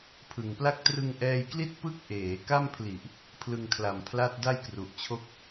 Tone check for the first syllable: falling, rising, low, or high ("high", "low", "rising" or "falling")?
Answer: low